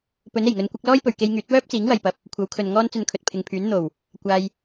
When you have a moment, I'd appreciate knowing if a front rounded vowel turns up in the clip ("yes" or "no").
yes